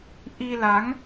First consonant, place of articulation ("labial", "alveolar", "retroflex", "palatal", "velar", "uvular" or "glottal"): glottal